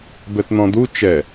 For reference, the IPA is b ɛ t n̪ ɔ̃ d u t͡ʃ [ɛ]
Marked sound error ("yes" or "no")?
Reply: no